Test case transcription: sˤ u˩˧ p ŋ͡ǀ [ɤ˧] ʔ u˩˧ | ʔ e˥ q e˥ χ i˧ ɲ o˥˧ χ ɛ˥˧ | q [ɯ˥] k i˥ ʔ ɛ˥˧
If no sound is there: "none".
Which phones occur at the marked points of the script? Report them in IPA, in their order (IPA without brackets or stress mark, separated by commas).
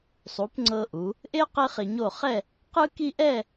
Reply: ɤ˧, ɯ˥